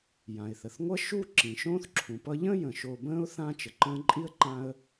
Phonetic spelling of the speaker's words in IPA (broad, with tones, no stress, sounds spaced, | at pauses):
j ã˩ ɪ̯ θ ə˩ θ ŋʷ ʌ˦ ʃ u˥ ǁ ĩ˩ ʃ õː˥ θ ǁʰ ũ˩ p ʌ˦ ʎ ə̃ː˥ j ə̃˩ ʃ o˨ b ə̃ː˦ ʊ̯ θ ã˥ t͡ʃ ə˩ ǃ ə̃ː˥ ǃʼ i˥ ə̯ ǃ ã˦ ə̯